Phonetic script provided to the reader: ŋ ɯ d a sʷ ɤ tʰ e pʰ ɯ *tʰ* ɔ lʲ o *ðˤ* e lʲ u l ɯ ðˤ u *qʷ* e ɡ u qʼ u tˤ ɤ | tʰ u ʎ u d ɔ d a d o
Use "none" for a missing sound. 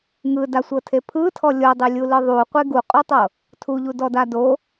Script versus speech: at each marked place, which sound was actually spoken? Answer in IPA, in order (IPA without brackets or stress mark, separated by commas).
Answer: tʰ, dˤ, qʷ